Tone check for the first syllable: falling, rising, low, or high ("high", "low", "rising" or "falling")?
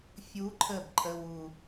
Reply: rising